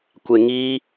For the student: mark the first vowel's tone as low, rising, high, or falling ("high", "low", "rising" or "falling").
low